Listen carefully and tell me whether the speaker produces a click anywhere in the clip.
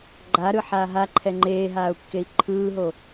yes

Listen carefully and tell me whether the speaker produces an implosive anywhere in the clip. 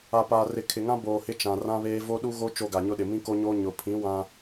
yes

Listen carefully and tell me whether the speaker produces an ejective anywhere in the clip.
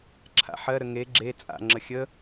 yes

